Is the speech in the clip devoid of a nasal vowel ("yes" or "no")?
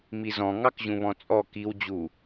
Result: no